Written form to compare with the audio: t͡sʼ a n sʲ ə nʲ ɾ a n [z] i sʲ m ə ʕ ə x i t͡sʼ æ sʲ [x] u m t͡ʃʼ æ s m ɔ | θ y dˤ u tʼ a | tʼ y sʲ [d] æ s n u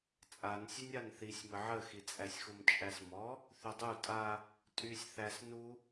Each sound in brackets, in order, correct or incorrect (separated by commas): incorrect, correct, incorrect